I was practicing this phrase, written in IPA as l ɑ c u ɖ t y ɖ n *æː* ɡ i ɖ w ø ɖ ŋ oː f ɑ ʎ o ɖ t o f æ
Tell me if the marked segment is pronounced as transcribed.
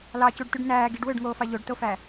yes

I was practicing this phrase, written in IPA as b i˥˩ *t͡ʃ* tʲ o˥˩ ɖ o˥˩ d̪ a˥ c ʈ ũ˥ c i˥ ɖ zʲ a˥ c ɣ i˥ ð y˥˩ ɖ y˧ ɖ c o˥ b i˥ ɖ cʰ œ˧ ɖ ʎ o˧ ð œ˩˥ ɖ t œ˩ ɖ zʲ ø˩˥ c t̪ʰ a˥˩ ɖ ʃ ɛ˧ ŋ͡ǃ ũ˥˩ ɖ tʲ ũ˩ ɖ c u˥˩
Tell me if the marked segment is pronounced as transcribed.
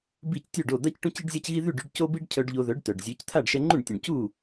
no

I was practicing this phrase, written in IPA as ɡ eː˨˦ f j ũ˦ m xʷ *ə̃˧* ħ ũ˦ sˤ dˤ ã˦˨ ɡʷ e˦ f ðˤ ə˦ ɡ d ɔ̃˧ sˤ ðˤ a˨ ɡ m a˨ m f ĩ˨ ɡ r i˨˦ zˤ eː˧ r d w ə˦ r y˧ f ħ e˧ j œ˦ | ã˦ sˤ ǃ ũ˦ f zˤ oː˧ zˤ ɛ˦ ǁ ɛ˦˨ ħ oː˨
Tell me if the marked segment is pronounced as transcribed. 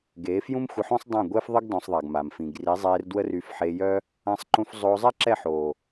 no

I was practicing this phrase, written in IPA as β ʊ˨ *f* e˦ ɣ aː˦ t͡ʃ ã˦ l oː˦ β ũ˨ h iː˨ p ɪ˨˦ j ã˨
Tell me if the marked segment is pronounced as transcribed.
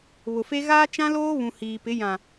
yes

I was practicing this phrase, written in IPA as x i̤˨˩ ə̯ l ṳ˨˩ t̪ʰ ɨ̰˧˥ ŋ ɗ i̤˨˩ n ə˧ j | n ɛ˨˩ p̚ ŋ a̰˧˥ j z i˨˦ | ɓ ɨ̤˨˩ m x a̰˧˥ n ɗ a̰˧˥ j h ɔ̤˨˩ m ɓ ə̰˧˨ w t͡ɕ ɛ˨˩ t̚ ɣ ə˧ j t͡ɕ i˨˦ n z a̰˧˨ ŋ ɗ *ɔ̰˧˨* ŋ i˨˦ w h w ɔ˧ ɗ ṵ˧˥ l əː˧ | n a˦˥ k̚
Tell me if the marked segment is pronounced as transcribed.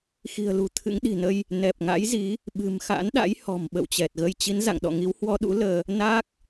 yes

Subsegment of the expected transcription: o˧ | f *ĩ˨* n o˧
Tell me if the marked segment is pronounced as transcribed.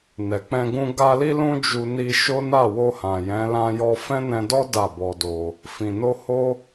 yes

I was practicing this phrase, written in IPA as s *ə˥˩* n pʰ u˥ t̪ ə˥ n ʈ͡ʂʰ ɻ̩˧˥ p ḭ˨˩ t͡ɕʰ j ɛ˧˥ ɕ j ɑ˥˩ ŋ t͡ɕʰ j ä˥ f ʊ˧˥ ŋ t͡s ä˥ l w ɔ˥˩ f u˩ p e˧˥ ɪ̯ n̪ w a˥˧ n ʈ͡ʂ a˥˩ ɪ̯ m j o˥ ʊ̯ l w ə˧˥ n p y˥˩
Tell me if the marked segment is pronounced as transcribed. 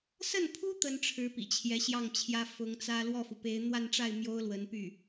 yes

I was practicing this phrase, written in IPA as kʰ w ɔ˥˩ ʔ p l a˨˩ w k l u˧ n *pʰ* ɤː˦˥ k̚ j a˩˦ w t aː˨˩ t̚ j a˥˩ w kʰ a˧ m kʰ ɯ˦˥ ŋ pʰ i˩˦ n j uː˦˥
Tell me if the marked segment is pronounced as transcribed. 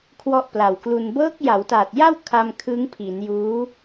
no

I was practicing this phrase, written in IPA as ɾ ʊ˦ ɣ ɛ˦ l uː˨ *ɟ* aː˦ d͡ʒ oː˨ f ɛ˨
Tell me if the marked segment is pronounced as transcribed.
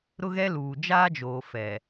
no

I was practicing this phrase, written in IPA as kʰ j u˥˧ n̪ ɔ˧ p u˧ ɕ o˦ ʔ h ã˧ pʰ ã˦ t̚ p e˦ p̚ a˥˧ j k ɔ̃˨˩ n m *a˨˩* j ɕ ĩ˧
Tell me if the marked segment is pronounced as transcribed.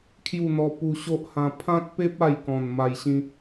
yes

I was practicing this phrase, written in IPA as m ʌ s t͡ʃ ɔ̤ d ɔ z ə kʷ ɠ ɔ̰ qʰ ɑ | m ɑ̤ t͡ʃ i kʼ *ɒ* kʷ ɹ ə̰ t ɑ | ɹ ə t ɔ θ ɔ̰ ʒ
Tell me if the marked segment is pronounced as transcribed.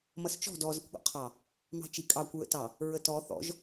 no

